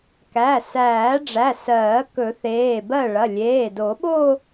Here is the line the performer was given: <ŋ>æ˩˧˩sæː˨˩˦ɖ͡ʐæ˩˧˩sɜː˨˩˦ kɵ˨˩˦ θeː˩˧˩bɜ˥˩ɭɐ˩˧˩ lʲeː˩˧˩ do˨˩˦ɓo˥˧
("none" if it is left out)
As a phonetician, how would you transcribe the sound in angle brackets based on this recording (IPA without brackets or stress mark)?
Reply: k